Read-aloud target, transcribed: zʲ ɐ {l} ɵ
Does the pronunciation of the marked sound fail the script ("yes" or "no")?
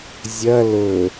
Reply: no